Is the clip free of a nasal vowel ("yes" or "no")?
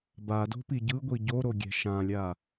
no